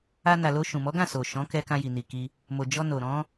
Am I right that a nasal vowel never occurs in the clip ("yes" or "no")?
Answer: no